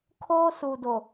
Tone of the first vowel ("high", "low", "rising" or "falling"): high